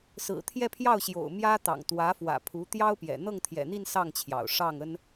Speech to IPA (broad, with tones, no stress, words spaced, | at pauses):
sɹ̩˨˩t̪ʰjɛ˥˧pʰjɑ˥˩ʊ̯ɕjo̰˨˩ʊ̯ mjä˥ t̪ɑ̰˨˩ŋt̪wä˧˥fwä̰˨˩pʰu˧˥ t̪jɑ˥ʊ̯ pjɛ̰˨˩ n̪ɤ˥˩ŋt̪ʰjɛ̰˨˩n̪i˥˧n sɑ˥˩ŋt͡ɕʰjɑ̰˨˩ʊ̯ ʂɑ˥˩ŋə˥n